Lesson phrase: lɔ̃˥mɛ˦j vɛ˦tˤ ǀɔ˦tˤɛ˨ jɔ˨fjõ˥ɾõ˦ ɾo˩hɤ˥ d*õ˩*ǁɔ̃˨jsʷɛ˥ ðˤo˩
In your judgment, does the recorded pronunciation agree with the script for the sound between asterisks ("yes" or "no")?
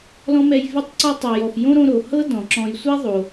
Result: no